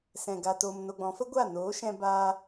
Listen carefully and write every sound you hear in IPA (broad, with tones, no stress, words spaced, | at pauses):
sɛ̃˨ ɡa˨toː˨m no˧ɡ͡bɔ̃˨˦ fə˦ɡʷa˦˨noː˨˦ʃɛ̃˧ baː˦